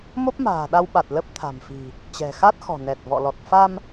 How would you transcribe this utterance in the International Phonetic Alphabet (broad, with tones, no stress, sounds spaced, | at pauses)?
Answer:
m o˦˥ p̚ m a̤ː˨˩ ɗ a˧ w ɓ a˨˩ t̚ l ə˦˥ p̚ t̪ʰ a̤˨˩ m f i̤˨˩ | t͡ɕ ɛ̤˨˩ x a˦˥ t̚ x ɔ̤˨˩ n ɛ˨˩ t̚ v ɔ̰˧˨ l ɔ˨˩ t̚ f a˧ m